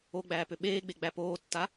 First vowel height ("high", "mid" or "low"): mid